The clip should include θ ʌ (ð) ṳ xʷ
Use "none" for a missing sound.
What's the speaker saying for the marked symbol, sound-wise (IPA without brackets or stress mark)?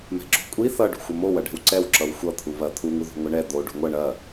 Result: ɖ